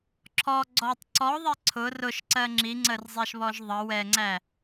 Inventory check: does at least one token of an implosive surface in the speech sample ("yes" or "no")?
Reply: no